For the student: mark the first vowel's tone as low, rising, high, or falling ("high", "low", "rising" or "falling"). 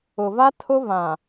low